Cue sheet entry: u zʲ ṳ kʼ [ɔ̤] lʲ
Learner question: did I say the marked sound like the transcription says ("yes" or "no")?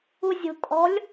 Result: yes